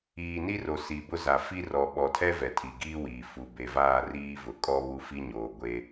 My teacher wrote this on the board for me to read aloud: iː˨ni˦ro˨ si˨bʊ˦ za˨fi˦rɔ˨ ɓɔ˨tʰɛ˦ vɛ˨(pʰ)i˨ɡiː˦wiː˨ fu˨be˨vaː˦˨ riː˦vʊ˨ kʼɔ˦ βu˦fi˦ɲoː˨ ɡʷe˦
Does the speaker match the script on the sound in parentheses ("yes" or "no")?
no